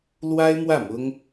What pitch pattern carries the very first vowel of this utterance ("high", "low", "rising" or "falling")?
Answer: high